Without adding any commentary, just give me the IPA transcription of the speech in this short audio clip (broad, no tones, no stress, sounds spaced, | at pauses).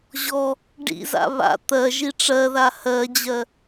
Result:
ʑ ɔ | ɖ ḭ z a̰ β a̰ t̪ ɜ ʒ i ʈ͡ʂ ɜ ð a h ɜ d͡ʑ ɜ